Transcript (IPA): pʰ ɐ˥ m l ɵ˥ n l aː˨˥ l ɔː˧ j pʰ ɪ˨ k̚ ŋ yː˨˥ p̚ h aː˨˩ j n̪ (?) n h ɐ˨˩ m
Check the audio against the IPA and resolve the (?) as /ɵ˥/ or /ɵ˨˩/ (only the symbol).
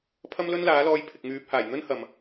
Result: ɵ˥